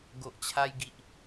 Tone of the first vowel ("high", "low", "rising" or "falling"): low